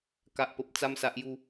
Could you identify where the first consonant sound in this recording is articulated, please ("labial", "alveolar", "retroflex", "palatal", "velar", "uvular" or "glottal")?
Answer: velar